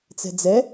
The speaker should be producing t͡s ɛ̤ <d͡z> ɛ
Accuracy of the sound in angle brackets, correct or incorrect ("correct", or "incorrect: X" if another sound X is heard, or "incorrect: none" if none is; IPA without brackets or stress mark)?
correct